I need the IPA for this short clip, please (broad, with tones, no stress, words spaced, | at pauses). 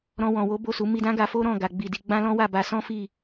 ɾɔ̃˧wɔ̃˨wo˨˦ bo˦˨su˨˦ mi˧dã˦ ɡa˧fo˦ɾɔ̃˦˨ ɡa˨ɡ͡bi˨di˧ ɡ͡bã˦lɔ̃˦wa˦˨ba˧ sɔ̃˦fi˦˨